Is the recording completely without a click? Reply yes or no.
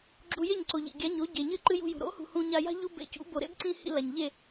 no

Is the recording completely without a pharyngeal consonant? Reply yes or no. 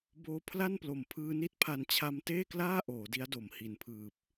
yes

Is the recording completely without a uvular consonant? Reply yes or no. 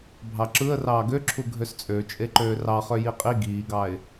no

